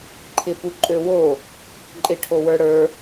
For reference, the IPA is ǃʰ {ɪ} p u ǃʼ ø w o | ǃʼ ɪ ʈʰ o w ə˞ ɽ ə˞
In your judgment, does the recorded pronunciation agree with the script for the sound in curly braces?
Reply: yes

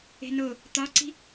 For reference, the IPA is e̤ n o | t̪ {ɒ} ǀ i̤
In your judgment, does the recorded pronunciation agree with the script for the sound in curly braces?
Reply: yes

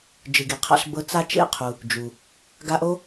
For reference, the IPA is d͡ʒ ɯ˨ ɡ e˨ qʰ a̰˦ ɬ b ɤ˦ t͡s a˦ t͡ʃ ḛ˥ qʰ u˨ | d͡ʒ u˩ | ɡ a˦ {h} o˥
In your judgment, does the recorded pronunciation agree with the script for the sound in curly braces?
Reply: no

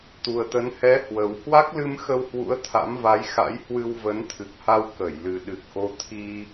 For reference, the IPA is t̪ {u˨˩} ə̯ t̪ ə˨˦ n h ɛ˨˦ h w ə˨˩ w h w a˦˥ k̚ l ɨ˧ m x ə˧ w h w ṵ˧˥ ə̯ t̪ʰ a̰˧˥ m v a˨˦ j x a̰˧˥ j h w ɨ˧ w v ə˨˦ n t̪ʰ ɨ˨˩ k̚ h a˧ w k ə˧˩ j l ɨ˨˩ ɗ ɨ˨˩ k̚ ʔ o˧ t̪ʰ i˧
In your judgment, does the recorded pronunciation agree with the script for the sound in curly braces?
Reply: yes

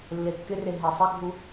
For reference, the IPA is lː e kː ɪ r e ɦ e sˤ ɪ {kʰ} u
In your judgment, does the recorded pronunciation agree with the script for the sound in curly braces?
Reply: no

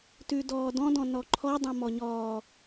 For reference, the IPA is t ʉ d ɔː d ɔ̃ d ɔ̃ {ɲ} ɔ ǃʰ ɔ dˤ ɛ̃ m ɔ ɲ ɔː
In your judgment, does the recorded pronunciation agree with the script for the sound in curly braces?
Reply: no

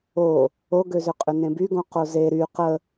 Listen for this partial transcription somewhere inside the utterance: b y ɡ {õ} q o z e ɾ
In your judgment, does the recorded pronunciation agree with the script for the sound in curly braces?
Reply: yes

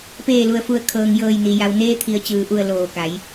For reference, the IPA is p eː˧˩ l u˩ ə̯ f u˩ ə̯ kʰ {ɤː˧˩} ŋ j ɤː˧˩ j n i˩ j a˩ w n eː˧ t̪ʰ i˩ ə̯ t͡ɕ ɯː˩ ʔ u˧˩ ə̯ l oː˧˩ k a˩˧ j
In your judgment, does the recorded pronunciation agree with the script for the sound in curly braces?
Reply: no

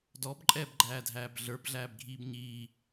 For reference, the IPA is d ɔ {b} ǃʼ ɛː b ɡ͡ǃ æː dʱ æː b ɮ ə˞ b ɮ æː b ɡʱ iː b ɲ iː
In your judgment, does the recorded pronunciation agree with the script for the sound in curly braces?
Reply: yes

